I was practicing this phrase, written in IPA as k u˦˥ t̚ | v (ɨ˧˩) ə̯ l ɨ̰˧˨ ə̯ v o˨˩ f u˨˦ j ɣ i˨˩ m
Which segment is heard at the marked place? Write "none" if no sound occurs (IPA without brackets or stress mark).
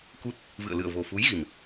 ɨ̰˧˨